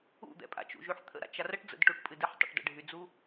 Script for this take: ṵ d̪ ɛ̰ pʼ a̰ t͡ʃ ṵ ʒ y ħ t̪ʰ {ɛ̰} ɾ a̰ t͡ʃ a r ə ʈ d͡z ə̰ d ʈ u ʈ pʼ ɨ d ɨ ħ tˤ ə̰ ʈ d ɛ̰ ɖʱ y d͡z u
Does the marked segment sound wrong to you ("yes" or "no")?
yes